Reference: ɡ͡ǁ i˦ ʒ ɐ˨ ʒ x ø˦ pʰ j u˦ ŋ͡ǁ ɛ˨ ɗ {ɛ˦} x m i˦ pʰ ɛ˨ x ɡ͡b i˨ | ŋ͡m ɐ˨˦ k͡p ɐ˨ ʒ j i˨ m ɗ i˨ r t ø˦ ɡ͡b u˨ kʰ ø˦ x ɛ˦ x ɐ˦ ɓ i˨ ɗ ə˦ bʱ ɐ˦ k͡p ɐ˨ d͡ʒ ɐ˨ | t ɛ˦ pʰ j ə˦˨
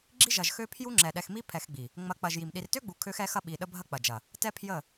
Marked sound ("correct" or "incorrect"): incorrect